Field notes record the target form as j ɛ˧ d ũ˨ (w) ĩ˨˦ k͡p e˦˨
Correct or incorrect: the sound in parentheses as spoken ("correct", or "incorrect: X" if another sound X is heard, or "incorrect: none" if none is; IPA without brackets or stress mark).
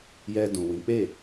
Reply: correct